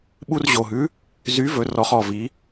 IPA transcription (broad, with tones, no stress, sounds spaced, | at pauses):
ɓ u˧ r ʑ o˨˩ ɦ ʉ˨˥ | z y˨˥ v ɵ˩˧ r ɔ˩˧ χ ɔ˨˩ v i˩˧